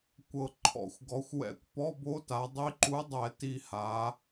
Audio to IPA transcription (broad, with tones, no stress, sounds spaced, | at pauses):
kʷ ɤ˨˩ ǃʰ ɔ̰˧˩˧ xʷ ɡ ɔ˩˧ xʷ w ɛ̰˧˩˧ kʷ p ɔ˧˥˧ b o˧˥ t a˩˧ dˤ i˧˥ ǃ u˧˥ dˤ ɛ˧˩˧ t i˨˩ h a˩˧